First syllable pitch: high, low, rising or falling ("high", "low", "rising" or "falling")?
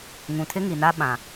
low